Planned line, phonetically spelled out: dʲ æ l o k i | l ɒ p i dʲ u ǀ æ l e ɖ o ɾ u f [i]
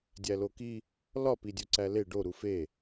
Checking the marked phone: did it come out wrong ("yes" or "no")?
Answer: yes